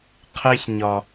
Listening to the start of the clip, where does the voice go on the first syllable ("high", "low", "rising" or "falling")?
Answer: high